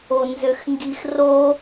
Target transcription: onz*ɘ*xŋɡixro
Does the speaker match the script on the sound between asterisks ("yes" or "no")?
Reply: no